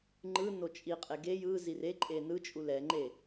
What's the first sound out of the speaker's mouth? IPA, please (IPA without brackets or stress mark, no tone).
ŋ͡ǃ